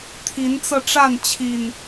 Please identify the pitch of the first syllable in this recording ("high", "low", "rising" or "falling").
rising